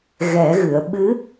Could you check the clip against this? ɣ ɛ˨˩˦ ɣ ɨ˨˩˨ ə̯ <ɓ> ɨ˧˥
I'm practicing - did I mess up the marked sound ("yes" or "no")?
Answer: no